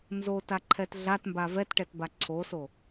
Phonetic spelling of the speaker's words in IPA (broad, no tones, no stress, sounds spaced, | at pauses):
n z o t a ǃʰ ɛ t ɮ a t m b a v ɛ t ʈ ɛ t b a ǀʰ o s o